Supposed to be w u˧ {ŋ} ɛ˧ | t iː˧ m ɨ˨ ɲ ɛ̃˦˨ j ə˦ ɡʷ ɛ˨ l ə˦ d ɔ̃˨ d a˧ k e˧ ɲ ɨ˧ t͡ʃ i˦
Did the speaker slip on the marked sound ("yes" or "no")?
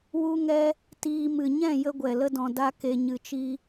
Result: no